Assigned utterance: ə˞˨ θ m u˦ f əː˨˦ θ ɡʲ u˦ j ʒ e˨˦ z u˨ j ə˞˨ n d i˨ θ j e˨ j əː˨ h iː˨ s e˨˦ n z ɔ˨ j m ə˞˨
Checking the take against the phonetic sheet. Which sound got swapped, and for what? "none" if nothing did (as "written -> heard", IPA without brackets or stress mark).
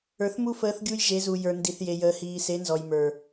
none